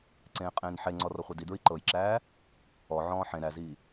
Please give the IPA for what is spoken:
ǀ ẽː qʼ ẽː n ħ e ŋ͡ǀ ɔ r ɔ χʷ e d i d ɹ i ǃ ɤ j ǁ æː | ɔ ʕ ɔ̃ː ħ ẽ ɾ æ z iː

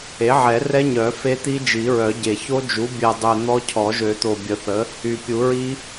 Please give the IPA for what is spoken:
e˩˥ ʕ ɛ˨˩˦ r ɛ˦˥ ɲ œ˨˩˦ f e˦˥ t̪ i˦˥ d͡ʒ i˨˩˦ ɹ œ˨˩˦ ɟ e˨˩ ç o˦˥ d͡ʒ u˩˥ bʲ ɛ˨˩ dˤ ø˨˩ n̪ ɔ˦˥ cʰ ɔ˨˩˦ ʒ ø˨˩˦ t̪ o˨˩ bʲ ə˨˩˦ θ ə˩˥ | y˨˩ pʲ u˨˩˦ ɹ i˦˥

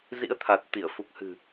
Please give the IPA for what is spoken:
z ḭ˧˥ ə̯ t̪ʰ a˨˩ t̚ t̪ i˧˩ ə̯ f u˨˩ k̚ h ɨ̤˨˩

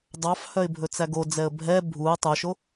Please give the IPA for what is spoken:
dˤ ɑ f h œ ɪ̯ bʱ ɵ t͡s æ ɡ o d͡z ɛ ə̯ bʱ ɛ bʱ u ə̯ tˤ œ ʃ o

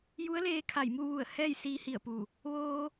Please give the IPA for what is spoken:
j u˧˥ ə̯ l eː˧ kʰ a˧˩ j m u˥˨ ʋ u˧˩ ə̯ h ɛː˥˨ j s iː˧ h i˧˩ ə̯ p u˧˩ | ʋ oː˧

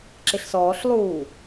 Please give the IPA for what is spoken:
ǁ ɪ ɬ s ɔː ɬ lˠ uː

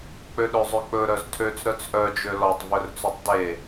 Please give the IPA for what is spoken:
k͡p ø ɗ ø zˤ ø k͡p ɵ ɾ œ z tʰ ø t͡s ɾ œ t͡s ʔ œ d͡ʒ ø l ɔ tˤ v ɵ r t͡s ø tˤ d e

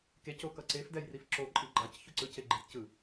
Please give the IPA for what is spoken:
k e c o k ʌ ǀ e f d ɛ j r i f ǁ o ǃʼ i ɡ͡ǃ a c ç u ǀ ɯ c e ɡ͡ǃ i t c ɯ

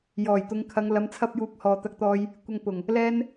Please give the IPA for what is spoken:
j ɔː˨˩ j t̪ ʊ˨˧ ŋ kʰ ɐ˨˧ ŋ l ɐ˨˧ m t͡sʰ ɐ˧ p̚ j uː˨˥ k̚ h ɔː˨ t̪ ɐ˧ k̚ t̪ ɔː˧ j | kʷ ɐ˧ ŋ p ʊ˨˩ ŋ | l ɛː˧ n

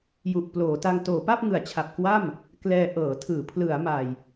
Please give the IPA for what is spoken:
j u˨˩ ʔ p l oː˩˦ t a˧ ŋ t oː˩˦ p a˥˩ p̚ ŋ ɯ˨˩ a̯ t͡ɕʰ a˨˩ p̚ k w a˥˩ m | k l ɛː˧ ʔ ɤː˩˦ tʰ ɯː˩˦ pʰ l ɯ˩˦ a̯ m a˨˩ j

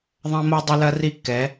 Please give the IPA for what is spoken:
ðˤ ɐ̃˦ m o˦ dˤ ɘ˦ l ɐ˦ r i˦˨ kː ɛ˨˦

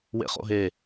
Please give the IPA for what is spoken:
w ḛ χ o̰ ɦ e

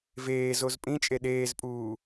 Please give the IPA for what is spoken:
v eː z o z pʼ ĩ t͡ʃʼ e ɗ eː z pʼ uː

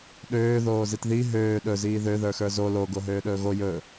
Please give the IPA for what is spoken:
ɗ øː ð oː z i t ð i ɦ øː ɗ ɵ z iː ð ø ð ə˞ x ə˞ z o l o ɡ o ɦ øː ɗ ɵː ɣ o j ɵ

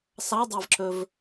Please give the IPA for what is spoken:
s ɑ dˤ æ v ǁ ɵ v

